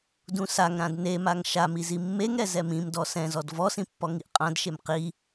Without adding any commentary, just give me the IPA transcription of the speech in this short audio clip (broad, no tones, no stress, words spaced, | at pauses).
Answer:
dũsaŋɾãd nemaŋ ʃami zimːeŋɾɛ zɛmĩmdɔ sɛ̃ zɔdvɔsĩ pːɔŋiʔqʼãdʃem qi